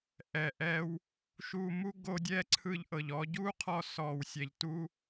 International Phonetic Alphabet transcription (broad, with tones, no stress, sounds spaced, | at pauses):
ʔ ɛ˨ ʔ ɛ˧ w | ʃ u˧ m u˦ ɡ o˧ dʲ ɛ˦˨ ǀʰ ɯ˧ ʎ ʔ ɤ˨ ʎ ɔ˧ ɟ u˦ qʰ ɔ˧ s ɔ˧ w sʲ ɛ˧ ʎ t u˦